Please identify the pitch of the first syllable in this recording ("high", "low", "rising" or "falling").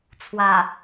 low